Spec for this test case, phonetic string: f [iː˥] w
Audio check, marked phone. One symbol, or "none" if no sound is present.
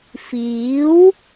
iː˨˥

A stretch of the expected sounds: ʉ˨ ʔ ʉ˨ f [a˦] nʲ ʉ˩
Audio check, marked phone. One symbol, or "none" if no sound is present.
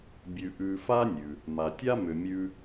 a˦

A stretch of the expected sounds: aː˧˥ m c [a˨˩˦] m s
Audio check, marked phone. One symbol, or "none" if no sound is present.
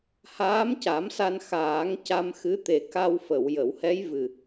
a˨˩˦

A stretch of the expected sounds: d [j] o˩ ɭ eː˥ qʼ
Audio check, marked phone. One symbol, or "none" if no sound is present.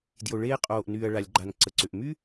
j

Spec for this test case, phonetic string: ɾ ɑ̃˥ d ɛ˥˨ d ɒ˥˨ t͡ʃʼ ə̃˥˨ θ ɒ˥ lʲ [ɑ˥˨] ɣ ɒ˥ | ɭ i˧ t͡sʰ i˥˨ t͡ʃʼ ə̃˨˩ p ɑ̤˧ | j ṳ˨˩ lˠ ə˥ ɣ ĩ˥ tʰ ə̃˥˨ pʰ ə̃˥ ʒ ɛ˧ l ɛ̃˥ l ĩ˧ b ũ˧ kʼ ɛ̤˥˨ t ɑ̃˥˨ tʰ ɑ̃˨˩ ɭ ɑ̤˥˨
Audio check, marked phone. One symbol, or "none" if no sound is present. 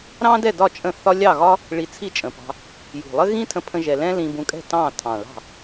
ɑ˥˨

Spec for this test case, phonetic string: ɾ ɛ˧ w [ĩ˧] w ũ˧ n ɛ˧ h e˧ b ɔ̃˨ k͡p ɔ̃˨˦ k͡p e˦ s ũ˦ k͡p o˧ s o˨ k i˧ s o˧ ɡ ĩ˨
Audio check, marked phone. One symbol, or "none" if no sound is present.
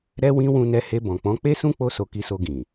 ĩ˧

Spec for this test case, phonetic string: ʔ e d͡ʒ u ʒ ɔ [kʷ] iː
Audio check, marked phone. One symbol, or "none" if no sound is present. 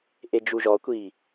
kʷ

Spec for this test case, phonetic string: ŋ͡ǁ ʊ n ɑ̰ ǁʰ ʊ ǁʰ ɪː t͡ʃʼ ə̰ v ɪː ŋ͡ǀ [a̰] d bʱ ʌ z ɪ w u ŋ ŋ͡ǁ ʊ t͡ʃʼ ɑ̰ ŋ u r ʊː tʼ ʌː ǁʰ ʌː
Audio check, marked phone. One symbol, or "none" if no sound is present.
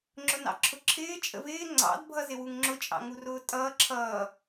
ɑ̰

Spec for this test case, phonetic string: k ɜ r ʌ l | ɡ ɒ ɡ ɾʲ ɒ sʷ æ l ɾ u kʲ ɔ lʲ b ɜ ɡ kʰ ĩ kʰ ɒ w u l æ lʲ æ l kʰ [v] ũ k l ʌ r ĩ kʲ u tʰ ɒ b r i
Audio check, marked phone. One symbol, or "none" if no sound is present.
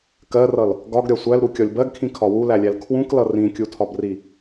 w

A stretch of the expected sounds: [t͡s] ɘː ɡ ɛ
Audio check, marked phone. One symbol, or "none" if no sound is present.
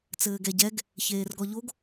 t͡s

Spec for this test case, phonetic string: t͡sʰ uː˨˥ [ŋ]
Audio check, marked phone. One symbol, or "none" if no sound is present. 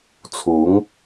ŋ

